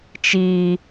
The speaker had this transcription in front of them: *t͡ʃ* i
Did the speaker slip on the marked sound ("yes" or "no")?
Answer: no